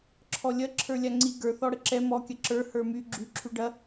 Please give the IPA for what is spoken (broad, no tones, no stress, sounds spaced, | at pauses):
ǁʰ ɔ lʲ ɐ ǁʰ ə˞ lʲ a ŋ͡ǀ i ɡ ə˞ θ ɔ ɽ ə ǁ ɛ m ɔ kʲ ɐ ǁ ə˞ h ə˞ m y ɡ͡ǁ y ǁʰ ʉ ɖ ɐ